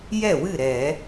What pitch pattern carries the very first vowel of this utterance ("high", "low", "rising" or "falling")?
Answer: falling